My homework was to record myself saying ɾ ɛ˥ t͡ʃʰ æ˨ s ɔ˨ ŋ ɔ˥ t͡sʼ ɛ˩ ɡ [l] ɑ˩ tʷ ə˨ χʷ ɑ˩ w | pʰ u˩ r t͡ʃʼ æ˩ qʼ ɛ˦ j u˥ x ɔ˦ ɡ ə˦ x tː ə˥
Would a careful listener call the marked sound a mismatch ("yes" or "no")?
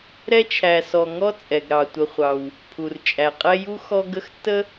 yes